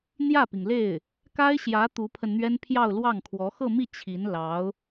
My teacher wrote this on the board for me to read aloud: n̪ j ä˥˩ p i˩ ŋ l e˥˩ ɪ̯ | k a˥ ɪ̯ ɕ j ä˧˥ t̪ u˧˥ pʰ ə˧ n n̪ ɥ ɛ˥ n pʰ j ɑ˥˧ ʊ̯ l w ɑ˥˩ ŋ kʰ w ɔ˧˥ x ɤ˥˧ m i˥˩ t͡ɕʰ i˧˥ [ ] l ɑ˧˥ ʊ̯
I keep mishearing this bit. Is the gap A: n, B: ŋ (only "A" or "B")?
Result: A